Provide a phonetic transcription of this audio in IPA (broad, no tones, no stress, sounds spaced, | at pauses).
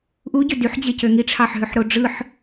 ʔ u ɟ ø d y ħ d͡ʑ e c ø ŋ i ʈ͡ʂʰ ɑ ħ ɦ ø ħ ɾ o ɖ͡ʐ ɯ ħ